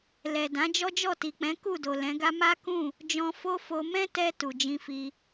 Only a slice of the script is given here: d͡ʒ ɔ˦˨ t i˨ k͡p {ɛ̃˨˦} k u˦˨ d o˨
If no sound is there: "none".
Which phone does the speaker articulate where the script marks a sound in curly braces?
ɛ̃˨˦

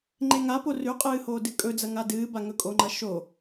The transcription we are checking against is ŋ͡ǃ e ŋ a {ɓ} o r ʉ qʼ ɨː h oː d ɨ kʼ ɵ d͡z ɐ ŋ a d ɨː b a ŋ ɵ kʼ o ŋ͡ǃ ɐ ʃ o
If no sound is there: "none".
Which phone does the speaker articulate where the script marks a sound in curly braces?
p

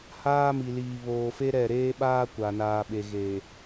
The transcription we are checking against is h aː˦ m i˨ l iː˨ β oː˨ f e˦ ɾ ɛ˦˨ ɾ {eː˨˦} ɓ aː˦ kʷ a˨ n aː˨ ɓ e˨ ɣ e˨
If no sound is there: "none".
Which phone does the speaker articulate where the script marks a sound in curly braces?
eː˦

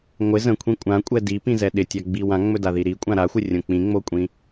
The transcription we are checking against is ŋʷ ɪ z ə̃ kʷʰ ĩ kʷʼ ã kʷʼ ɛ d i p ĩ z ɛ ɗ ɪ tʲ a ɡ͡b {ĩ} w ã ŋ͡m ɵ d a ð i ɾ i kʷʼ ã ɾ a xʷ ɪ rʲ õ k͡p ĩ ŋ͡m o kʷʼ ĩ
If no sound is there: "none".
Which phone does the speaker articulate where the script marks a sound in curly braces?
i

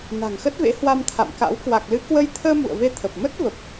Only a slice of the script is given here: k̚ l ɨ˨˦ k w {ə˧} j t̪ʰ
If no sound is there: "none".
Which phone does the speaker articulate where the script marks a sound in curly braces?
ə˧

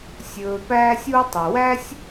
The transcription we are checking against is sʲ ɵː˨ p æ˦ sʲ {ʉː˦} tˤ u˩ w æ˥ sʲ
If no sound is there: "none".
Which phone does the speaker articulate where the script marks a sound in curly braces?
uː˦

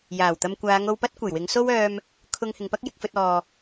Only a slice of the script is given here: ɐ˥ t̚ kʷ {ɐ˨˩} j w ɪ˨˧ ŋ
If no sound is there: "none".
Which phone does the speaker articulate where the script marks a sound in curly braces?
ɐ˨˩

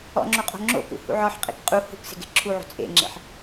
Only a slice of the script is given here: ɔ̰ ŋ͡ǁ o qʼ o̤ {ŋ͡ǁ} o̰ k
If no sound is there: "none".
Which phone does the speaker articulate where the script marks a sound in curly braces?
ŋ͡ǁ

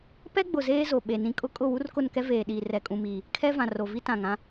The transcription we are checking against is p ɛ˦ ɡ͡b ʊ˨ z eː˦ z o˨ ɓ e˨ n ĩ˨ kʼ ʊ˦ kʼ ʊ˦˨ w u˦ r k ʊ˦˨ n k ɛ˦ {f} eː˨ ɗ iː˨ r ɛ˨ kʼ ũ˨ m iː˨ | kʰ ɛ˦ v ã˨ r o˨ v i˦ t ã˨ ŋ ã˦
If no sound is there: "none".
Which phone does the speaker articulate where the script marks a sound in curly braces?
v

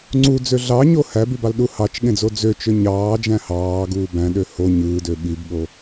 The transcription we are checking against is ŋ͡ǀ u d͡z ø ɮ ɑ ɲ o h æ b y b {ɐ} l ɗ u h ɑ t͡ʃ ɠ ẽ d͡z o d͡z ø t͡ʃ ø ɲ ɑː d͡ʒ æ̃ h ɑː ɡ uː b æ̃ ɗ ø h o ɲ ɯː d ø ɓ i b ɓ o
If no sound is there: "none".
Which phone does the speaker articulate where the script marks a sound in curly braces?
ɑ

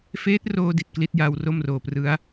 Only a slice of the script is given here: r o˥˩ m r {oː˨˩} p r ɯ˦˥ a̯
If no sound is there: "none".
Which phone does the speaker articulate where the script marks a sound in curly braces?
oː˨˩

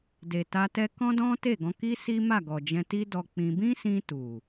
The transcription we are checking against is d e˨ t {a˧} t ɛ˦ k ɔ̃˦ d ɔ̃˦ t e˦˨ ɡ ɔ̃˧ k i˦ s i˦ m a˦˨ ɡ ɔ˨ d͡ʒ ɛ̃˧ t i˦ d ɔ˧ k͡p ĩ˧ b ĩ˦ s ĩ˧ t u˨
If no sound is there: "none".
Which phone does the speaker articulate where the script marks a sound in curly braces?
a˧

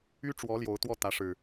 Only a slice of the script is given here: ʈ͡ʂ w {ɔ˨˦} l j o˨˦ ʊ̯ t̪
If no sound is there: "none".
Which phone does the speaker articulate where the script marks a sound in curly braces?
ɔ˨˦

